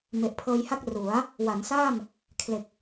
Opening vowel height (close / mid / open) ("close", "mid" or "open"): mid